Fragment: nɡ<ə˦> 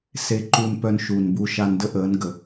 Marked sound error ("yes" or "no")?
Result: yes